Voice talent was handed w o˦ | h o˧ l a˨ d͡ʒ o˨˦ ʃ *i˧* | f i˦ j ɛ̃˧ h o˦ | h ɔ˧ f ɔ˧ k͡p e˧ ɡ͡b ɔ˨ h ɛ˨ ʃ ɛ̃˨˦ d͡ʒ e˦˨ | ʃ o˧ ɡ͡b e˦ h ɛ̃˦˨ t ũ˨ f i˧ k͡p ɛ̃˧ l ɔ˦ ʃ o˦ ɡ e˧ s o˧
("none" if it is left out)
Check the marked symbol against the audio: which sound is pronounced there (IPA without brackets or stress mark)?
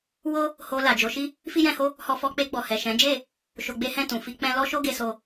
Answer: i˦